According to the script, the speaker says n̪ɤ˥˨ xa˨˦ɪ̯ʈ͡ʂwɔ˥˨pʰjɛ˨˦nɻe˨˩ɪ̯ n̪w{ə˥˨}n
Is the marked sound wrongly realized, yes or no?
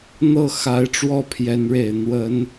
yes